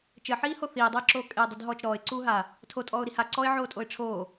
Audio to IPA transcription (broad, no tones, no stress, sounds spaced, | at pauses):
t͡ʃ ɘ ħ iː h o θ iː dˤ iː ǁ oː kʼ e dˤ i d ɦ ɔː t͡ʃ ɾ ɔː ɪ̯ ǀ uː ɦ a | tʰ o tʼ ɔː ʊ̯ ɾ i h a ǀ ɔ ɪ̯ ʕ oː tʼ o ɪ̯ ʈ͡ʂʰ oː